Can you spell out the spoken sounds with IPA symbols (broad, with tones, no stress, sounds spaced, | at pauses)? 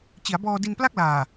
t͡ɕ i˩˦ a̯ b ɔː˧ d i˧ n p l a˥˩ k̚ l aː˨˩